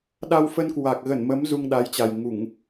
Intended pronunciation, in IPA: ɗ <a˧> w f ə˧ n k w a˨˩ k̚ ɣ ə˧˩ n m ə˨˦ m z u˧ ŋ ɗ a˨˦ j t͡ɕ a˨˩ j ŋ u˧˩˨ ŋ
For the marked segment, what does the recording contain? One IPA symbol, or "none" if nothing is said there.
a˧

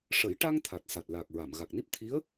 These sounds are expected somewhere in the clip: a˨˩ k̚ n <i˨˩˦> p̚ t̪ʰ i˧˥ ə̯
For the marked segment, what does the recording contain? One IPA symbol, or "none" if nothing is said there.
i˦˥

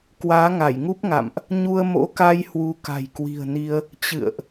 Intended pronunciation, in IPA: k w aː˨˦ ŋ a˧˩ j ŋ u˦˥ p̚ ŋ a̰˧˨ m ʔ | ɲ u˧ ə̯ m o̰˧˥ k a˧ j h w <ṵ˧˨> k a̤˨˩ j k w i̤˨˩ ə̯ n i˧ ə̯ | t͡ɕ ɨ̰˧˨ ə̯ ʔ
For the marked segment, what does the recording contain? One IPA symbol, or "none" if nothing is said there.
u˧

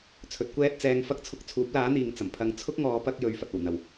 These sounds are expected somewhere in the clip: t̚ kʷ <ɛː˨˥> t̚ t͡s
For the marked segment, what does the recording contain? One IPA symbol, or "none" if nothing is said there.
ɛː˥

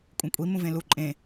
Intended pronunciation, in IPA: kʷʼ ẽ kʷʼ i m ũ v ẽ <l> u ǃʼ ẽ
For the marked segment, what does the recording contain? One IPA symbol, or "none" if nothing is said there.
l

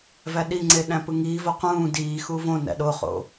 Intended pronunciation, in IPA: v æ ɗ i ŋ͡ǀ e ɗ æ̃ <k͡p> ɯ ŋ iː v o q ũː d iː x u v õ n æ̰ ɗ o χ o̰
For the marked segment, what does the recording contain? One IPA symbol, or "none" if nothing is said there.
p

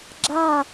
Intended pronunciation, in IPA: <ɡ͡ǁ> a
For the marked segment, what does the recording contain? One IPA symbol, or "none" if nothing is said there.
ɡ͡ǁ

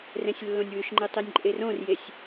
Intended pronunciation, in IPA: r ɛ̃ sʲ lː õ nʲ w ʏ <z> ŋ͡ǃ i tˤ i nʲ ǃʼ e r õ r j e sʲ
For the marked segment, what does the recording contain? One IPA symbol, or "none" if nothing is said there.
ʃ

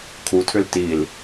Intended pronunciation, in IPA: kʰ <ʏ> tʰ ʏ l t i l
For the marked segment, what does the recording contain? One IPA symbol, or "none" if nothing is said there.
u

